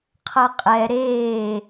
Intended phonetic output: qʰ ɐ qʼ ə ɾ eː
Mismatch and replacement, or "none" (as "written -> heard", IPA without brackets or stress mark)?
ə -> ɛ